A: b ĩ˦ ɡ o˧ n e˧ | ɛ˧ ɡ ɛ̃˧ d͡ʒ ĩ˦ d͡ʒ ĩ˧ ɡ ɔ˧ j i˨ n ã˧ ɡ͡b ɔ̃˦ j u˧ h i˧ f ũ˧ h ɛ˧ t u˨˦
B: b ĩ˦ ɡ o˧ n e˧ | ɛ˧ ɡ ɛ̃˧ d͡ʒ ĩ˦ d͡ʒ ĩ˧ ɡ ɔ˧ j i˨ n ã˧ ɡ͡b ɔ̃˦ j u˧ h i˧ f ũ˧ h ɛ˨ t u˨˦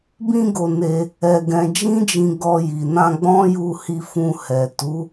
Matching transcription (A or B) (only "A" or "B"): B